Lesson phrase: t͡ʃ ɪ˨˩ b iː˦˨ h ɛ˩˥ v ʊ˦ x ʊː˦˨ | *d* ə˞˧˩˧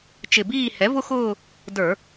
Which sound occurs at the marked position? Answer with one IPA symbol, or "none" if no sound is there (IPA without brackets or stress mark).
d